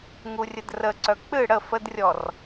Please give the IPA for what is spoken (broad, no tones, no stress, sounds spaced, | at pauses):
ŋ u rʲ ə d r ə ǀ œ k͡p ɨ ɽ ə f ə d rʲ ɔ r